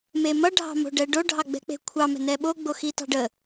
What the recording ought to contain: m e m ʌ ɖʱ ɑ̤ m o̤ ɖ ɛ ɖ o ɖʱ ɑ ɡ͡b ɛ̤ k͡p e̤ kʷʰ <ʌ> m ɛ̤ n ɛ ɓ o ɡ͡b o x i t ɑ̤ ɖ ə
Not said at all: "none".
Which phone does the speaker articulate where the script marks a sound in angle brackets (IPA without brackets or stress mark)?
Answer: ɑ